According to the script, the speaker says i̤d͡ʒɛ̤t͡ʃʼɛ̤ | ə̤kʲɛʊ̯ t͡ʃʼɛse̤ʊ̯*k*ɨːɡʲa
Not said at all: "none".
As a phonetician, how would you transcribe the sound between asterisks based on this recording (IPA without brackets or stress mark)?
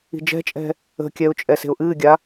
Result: ʔ